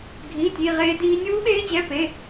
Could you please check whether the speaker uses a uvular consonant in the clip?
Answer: yes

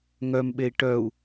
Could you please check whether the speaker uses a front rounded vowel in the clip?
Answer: yes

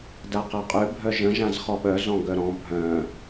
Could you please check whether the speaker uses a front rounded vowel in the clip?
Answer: yes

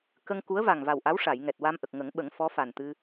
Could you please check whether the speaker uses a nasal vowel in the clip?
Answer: no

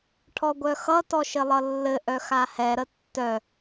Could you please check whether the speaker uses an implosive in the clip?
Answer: no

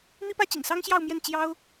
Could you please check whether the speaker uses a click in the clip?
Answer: no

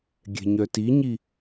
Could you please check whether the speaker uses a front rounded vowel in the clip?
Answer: yes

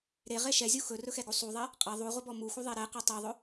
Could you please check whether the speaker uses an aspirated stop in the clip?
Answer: no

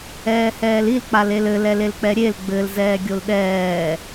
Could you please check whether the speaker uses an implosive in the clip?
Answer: yes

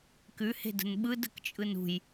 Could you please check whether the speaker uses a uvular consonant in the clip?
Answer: no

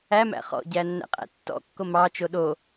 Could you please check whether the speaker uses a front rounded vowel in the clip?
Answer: no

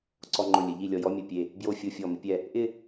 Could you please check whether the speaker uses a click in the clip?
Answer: yes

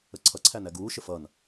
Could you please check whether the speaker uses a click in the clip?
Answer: yes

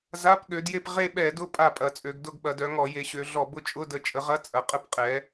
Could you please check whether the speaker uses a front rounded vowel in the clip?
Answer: yes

